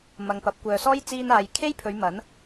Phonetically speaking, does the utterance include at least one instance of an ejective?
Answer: no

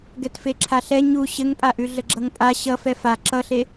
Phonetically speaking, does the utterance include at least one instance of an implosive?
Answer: no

